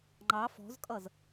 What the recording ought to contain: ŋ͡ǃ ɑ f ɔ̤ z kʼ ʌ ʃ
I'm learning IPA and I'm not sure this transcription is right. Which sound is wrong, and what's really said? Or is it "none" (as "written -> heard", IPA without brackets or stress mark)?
ʃ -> z